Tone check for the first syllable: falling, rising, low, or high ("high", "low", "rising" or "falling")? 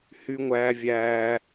high